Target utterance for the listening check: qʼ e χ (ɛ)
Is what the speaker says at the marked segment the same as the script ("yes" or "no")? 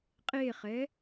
yes